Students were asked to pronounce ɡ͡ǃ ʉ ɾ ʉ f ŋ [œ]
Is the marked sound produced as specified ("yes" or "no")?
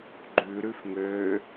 no